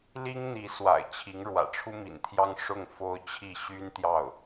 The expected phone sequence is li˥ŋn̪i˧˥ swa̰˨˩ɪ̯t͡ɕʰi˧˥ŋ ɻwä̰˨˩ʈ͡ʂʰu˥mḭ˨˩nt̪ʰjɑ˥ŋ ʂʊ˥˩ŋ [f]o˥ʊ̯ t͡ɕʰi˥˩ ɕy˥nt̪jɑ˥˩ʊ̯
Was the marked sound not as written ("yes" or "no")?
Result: no